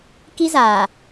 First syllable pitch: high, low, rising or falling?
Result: high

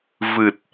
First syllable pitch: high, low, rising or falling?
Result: low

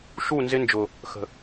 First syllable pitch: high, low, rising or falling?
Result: falling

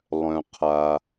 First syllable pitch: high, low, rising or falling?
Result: low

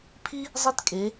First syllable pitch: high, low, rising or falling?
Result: high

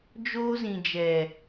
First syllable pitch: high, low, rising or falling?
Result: high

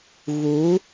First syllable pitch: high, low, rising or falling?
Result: rising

